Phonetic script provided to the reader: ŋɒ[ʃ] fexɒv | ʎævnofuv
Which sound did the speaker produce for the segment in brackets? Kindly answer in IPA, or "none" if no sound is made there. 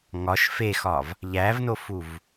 ʃ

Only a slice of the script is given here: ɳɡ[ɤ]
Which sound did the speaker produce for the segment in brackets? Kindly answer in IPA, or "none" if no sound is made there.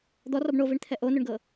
ɤ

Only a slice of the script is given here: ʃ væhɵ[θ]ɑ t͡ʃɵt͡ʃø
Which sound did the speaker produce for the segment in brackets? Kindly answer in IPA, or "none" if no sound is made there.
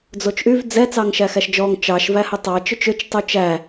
tˤ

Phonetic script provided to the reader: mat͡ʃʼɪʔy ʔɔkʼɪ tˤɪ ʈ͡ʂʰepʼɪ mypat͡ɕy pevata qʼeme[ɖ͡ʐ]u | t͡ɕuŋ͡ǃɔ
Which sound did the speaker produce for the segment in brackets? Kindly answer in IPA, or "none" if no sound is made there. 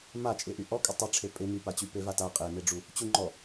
ɖ͡ʐ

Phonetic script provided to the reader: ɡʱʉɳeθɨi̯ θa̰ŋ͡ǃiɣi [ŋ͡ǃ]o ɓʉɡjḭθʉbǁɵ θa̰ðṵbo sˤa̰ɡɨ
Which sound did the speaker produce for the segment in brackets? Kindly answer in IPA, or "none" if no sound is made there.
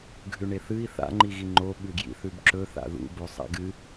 ŋ͡ǃ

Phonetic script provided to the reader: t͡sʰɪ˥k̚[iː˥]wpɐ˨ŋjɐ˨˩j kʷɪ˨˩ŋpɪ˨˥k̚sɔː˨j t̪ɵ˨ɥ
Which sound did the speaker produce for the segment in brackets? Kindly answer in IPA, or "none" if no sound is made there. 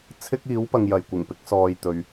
iː˨˥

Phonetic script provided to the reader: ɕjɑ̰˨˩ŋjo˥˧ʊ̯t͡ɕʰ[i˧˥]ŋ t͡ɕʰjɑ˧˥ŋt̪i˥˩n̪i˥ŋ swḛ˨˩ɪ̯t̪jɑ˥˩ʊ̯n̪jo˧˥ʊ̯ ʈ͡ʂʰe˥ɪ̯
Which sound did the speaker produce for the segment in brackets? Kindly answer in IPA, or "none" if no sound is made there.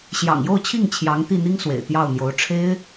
i˥˩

